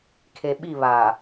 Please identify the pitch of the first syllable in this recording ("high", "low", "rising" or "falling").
low